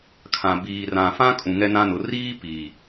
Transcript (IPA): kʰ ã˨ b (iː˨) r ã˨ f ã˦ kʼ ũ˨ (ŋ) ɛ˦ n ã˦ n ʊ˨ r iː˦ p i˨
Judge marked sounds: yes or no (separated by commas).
yes, yes